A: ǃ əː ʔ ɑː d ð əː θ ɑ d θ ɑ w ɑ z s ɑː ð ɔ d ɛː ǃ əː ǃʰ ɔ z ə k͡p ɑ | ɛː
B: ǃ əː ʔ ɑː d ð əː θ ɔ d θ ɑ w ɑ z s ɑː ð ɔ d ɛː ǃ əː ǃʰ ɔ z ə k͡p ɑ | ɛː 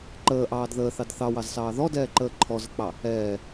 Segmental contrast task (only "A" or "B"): A